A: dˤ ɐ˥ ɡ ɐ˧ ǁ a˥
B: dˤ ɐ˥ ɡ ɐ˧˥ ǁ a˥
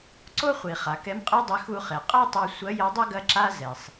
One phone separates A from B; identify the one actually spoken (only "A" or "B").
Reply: B